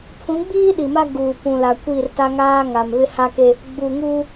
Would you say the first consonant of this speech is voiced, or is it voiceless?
voiceless